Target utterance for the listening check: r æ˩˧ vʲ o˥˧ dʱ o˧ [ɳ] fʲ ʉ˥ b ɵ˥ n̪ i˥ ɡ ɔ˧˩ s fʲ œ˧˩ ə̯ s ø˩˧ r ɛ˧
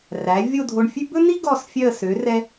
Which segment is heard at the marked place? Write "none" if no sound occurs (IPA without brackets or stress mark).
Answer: ɳ